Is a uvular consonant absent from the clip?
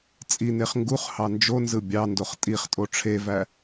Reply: no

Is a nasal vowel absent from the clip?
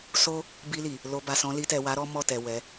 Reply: no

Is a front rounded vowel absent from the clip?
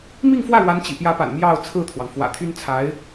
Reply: no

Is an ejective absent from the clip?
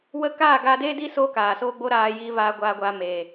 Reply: yes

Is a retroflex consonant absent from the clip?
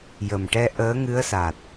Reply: no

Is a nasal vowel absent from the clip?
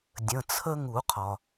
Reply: no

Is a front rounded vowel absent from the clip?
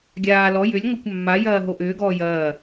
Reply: no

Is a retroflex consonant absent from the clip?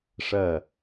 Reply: no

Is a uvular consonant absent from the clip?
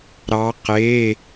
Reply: no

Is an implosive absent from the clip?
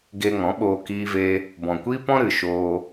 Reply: no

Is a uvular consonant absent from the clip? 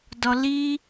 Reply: yes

